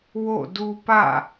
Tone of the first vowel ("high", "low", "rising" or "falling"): falling